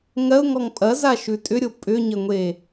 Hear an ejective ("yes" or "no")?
yes